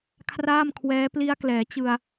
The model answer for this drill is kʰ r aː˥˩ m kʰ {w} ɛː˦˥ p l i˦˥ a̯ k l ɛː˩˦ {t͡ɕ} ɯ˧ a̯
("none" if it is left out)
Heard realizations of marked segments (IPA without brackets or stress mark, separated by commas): w, t͡ɕ